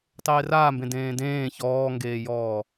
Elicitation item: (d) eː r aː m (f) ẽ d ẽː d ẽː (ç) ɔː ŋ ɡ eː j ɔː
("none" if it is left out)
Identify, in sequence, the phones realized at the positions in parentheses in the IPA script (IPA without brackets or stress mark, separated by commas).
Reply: tˤ, b, ç